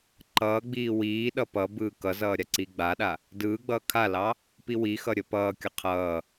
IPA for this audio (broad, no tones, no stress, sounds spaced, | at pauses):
ǃ ʌː ɡ͡b iː w iː ɗ ʌ p ʌ b ɯː k ʌ z ʌː ɾʲ a ǀ iː ɡ͡b aː ɗ a | d ɯː ɡ͡b ʌː kʰ a l ɑ | p i w i x ʌ ɾʲ ə p ʌː kʲ ʌ qʰ ʌː